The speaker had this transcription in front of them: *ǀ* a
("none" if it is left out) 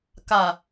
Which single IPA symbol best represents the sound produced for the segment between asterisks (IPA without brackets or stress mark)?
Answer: k